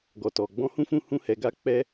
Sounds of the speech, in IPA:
ɡɔ˨tɔ˨ ɡ͡bɔ̃˧hũ˦fũ˦˨hũ˧ hɛ˨ɡa˧ k͡pɛ˧

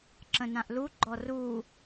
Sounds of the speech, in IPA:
ǁə̃nãʔluɡ͡ǃɔ ru

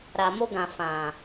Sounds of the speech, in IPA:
ɾa˨mo˧ɡã˨ fã˨

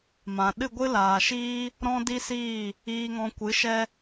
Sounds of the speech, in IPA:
mã˨ ɗɨ˦˨ɡʷɨ˦laː˨ʃiː˦ | ɾɔ̃˦di˦siː˦˨ | iː˧ŋɔ̃˧ kʷɨ˨˦ʃɛ˦

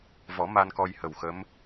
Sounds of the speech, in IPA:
vɔ˨˩˦ ma˧nkɔ˧jhə˨˩wxə˧˥m

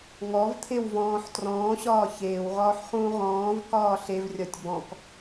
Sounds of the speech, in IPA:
ŋɔvt̪ʰew vɔ̃ːħ trɔ̃ːɕɒː çeːwʁɒːħχũː ʁɔ̃ːvkɒː ɬevrʲɒtʲ bɔ̃k

